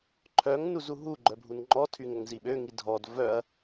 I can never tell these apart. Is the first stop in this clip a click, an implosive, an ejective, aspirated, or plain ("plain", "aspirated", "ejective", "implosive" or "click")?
click